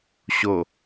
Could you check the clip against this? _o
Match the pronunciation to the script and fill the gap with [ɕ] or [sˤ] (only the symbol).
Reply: ɕ